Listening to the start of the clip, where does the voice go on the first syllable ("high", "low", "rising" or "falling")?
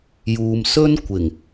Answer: low